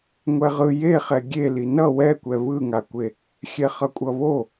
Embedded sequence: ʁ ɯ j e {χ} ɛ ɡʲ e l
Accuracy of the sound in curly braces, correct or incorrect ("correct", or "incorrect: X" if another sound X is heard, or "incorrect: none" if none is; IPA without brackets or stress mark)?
correct